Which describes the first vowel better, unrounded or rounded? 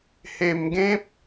unrounded